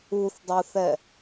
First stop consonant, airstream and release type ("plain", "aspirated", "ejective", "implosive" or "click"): plain